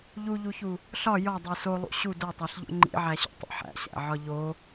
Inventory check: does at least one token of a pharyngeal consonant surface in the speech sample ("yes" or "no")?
yes